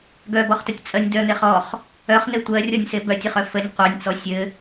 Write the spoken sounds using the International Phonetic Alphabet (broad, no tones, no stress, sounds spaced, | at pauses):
ɡ œ b ɔ χ t ə tʲ t͡sʼ ɜ nʲ d œ n e χ ɔ χ | œ χ n e tʷ ɜ rʲ ɔ nʲ s e b œ tʲ ɘ χ œ f ə nʲ qʷ œ nʲ t͡s ɔ sʲ ɘ